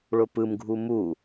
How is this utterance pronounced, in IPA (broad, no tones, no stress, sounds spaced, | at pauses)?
ɭ ʊ p ɯ m ɡʱ u m u